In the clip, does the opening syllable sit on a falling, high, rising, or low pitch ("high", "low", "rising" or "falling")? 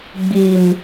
low